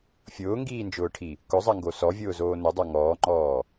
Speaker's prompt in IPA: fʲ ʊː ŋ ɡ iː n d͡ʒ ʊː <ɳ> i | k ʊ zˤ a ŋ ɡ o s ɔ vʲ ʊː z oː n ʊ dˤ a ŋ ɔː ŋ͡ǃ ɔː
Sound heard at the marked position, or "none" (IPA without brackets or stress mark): ʈʰ